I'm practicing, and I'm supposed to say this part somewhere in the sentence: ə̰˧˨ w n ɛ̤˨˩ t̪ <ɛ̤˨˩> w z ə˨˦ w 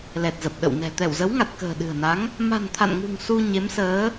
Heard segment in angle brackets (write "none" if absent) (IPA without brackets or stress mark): ɛ˧˩